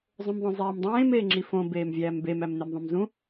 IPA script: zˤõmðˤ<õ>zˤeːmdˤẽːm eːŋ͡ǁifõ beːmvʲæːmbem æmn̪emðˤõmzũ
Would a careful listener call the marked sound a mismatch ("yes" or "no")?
no